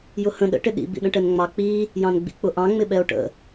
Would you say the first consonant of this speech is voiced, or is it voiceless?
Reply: voiced